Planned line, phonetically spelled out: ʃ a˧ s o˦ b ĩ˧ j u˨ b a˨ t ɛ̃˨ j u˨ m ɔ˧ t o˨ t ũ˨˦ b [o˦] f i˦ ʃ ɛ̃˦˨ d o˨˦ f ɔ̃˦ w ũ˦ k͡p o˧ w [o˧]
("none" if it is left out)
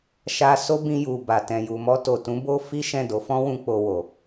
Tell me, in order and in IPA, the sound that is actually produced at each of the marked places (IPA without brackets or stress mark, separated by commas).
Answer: o˦, o˨